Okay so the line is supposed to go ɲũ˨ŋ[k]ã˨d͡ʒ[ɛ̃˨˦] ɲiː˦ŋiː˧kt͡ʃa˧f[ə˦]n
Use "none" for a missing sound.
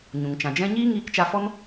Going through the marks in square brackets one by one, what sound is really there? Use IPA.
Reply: t͡ʃ, ɛ̃˦, ɔ˦

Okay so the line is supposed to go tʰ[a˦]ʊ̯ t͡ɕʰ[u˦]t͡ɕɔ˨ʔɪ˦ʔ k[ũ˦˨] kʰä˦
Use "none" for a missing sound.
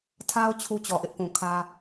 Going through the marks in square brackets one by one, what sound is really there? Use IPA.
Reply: a˦, u˦, ũ˨

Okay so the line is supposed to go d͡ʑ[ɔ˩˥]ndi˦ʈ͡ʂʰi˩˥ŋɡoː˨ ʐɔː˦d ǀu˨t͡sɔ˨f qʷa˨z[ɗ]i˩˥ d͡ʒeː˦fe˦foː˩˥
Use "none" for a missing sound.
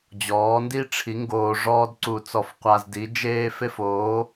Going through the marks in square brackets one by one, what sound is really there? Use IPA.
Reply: ɔː˩˥, d

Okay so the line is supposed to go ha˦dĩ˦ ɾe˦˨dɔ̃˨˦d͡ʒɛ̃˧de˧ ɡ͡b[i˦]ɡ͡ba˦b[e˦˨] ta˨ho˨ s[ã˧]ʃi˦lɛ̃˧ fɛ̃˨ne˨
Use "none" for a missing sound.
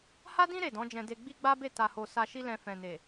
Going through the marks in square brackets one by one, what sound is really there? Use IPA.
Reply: i˦, e˦˨, a˧

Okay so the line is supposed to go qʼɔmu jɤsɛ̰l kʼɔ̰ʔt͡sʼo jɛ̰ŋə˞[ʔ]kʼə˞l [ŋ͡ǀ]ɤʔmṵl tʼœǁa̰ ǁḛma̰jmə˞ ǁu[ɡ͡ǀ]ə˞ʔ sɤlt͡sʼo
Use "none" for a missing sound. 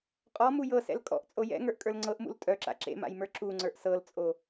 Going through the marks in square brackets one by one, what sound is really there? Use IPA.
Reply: ʔ, ŋ͡ǀ, ŋ͡ǀ

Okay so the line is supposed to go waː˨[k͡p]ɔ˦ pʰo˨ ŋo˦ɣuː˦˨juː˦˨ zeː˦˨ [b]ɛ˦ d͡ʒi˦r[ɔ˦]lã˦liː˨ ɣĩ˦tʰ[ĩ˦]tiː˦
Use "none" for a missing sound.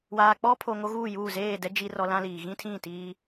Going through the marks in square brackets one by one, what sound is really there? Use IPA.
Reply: k͡p, d, ɔ˦, ĩ˦˨

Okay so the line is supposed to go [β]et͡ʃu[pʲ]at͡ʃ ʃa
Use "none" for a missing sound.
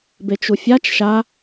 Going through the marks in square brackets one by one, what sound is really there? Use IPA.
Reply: b, fʲ

